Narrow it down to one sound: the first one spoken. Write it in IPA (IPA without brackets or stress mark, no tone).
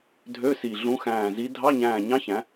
dʱ